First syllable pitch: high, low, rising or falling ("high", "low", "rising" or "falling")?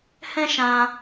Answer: high